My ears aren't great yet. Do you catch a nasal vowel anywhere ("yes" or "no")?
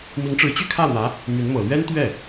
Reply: no